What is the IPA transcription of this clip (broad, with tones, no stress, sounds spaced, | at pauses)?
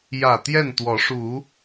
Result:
j ä˨˩ t̪ j ɛ˥˨ n t̪ w ɔ˨˦ ʂ u˨˦